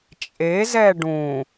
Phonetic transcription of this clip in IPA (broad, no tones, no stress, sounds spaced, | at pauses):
t͡ʃʼ e z ɛ ɖ ũ